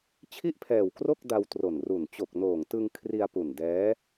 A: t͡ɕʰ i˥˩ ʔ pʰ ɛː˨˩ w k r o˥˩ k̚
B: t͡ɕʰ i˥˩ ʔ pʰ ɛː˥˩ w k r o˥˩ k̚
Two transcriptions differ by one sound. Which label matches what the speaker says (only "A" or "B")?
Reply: A